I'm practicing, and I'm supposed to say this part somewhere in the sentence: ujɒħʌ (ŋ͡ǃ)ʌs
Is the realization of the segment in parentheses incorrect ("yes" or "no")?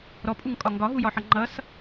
no